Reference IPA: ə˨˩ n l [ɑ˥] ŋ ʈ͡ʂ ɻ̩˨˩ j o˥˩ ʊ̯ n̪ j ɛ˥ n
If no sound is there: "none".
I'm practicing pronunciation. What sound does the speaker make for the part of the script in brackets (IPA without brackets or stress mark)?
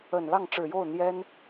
ɑ˥˩